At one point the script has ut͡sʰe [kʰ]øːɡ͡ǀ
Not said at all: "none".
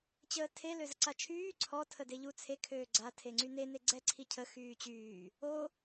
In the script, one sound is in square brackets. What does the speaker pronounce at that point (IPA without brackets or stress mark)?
kʰ